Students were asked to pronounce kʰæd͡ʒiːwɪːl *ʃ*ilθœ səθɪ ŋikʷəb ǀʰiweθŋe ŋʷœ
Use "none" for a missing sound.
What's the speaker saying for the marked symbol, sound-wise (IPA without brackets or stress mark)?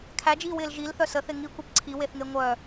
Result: ʒ